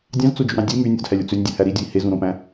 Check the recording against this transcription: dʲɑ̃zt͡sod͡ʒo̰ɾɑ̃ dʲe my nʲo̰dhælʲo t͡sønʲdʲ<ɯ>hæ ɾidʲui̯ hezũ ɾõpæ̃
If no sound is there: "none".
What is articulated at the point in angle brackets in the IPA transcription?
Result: ɯ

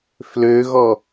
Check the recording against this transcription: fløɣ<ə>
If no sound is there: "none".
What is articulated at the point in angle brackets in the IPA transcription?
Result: ɔ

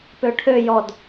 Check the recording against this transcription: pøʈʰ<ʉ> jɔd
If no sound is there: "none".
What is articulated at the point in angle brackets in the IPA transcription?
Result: ø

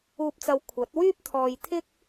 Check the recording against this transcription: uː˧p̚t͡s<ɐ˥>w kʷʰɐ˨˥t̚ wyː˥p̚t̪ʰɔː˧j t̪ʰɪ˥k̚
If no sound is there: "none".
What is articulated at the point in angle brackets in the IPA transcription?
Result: ɐ˧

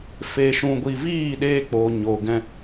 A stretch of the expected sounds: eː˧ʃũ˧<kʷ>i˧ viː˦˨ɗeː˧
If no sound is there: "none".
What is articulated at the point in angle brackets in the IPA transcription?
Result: ɡʷ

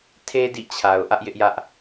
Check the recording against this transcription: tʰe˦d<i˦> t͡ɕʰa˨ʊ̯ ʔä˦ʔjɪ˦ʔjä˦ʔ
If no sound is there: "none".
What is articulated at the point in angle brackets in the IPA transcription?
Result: ḭ˦˨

